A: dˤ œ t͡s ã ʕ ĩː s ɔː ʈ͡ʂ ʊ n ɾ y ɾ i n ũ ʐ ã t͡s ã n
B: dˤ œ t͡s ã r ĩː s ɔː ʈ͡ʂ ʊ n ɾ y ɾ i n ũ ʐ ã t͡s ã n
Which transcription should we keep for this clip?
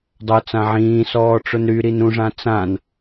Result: A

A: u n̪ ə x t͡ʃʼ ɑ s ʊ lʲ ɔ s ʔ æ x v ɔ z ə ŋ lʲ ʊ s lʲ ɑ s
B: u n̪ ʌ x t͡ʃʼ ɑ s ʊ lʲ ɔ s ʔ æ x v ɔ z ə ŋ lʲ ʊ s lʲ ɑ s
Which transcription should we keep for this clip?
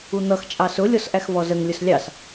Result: B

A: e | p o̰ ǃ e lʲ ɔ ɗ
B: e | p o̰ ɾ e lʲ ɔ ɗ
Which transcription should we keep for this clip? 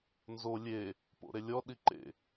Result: B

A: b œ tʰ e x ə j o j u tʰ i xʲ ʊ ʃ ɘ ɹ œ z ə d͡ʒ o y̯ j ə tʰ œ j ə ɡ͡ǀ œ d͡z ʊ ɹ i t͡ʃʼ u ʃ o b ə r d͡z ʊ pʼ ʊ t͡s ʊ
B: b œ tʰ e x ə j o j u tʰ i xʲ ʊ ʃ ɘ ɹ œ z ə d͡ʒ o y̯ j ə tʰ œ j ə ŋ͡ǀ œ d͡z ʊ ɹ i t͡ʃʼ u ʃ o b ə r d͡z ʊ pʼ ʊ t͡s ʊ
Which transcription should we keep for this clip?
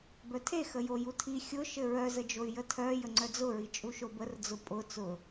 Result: B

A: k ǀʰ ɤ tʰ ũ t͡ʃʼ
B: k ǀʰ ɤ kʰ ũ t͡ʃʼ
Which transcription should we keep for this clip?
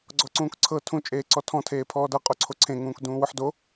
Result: A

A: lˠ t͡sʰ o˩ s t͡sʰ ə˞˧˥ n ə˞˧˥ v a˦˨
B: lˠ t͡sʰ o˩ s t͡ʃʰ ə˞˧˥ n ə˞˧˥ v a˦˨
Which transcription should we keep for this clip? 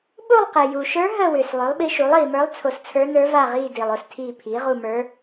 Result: A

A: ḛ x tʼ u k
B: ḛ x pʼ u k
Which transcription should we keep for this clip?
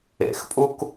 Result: B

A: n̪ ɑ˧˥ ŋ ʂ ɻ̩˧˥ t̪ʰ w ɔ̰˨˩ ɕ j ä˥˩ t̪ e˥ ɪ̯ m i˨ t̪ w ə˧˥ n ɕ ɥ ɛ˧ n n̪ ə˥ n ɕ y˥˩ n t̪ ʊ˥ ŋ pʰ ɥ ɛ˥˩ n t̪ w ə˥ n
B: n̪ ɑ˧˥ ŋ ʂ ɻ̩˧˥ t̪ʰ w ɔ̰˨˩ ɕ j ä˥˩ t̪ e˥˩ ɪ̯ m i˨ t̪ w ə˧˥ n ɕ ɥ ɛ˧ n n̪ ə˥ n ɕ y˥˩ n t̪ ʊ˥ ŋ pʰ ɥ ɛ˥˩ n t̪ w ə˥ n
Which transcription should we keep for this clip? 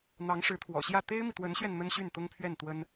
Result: A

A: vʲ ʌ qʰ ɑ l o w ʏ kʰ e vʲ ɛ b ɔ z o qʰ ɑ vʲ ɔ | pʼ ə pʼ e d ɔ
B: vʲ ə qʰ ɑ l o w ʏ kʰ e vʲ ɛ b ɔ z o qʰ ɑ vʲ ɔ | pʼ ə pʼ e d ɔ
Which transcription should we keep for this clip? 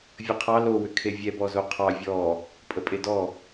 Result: B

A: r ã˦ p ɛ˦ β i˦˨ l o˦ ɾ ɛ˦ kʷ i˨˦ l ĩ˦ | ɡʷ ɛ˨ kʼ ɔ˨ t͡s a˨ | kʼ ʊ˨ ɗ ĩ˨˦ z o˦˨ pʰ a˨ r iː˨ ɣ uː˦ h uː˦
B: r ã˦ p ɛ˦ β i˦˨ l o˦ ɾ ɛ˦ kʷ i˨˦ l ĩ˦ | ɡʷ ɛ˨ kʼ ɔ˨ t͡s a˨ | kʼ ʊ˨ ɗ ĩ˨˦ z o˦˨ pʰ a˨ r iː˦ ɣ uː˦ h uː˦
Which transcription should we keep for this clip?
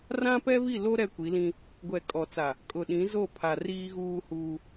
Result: B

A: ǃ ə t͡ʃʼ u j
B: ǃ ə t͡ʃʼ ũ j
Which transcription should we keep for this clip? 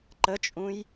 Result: B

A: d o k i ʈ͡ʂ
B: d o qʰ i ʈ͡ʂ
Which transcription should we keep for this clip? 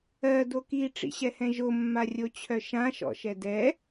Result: A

